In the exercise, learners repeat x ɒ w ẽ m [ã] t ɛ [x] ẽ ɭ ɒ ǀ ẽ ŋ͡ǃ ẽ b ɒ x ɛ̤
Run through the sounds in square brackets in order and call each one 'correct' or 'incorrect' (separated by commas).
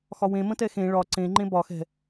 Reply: incorrect, correct